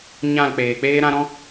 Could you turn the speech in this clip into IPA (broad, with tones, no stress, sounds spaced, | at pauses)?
ɲ ã˦˨ l k͡p eː˨ k͡p eː˧ ɾ ã˧ ɾ ɔ̃˧